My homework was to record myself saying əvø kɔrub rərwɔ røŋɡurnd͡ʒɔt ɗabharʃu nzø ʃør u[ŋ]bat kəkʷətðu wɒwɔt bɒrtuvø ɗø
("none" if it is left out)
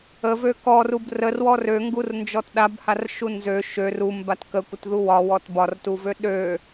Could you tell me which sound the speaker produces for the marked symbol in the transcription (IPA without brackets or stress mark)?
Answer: m